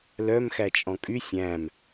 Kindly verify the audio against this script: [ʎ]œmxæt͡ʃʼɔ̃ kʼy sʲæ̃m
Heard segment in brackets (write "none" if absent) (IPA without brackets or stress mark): l